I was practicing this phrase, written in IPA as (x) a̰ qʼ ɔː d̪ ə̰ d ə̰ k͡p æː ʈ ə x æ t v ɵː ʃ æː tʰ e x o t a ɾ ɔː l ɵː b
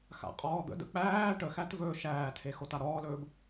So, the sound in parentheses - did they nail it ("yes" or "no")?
yes